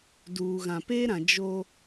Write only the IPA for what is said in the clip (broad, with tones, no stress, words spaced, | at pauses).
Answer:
duː˨ɣã˨ peː˦ɾã˨ d͡ʒo˦